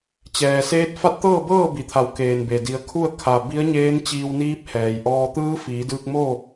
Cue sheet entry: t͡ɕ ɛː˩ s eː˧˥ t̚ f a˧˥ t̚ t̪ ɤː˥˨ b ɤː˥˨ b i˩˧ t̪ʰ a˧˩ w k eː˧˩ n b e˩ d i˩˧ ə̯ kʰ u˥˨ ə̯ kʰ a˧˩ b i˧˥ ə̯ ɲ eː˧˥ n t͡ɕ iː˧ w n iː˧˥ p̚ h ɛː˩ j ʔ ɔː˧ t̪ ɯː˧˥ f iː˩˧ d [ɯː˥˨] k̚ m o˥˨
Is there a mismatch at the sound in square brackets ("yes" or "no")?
yes